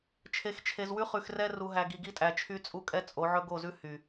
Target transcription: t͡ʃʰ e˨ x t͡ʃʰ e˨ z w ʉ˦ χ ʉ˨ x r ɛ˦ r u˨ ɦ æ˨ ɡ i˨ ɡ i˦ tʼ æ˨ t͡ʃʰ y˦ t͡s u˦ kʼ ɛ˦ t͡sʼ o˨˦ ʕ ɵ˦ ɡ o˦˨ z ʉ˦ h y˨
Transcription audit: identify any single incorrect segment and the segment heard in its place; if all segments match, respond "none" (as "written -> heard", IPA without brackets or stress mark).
t͡s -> t͡sʼ